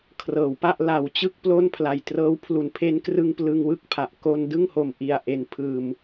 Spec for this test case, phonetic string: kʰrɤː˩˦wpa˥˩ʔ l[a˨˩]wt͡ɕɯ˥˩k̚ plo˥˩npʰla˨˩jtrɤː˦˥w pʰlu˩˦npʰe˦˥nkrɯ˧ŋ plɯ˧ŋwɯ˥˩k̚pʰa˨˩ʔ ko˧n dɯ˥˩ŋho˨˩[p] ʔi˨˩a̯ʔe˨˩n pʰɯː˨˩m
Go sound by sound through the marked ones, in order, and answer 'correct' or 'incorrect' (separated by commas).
correct, incorrect